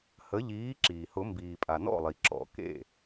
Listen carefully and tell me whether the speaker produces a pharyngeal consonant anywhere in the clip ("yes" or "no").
no